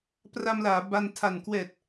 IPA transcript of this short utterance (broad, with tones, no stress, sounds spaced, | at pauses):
p r a˧ m l aː˩˦ b a˧ n tʰ a˨˩ n k w ɛː˨˩ t̚